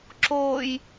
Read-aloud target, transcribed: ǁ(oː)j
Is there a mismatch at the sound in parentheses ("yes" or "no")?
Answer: no